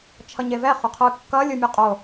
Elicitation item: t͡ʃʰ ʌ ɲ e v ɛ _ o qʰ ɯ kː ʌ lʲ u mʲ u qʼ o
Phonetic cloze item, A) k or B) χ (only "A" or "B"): B